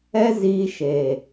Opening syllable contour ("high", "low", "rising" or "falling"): high